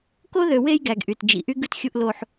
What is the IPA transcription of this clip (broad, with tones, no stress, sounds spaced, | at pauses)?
k o˦ ð ø˨ w e˦ j ɡ æ˨ ɡ ʔ y˨ t d͡ʒ ḭ˨ ʔ y˦ ɡ ɯ˦ t xʲ u˦ ʔ l o˦ ħ